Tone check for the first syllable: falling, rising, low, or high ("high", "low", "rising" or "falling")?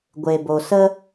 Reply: low